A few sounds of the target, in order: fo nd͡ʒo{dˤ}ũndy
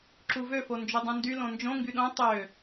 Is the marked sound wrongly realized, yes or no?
no